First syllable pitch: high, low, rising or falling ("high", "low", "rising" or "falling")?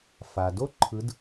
low